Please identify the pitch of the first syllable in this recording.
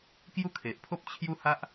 high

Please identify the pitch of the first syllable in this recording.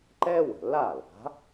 high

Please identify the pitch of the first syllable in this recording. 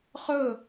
falling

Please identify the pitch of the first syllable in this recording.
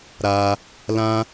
high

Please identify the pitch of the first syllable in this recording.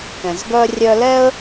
low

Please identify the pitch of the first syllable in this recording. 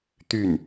falling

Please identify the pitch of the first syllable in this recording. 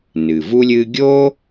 low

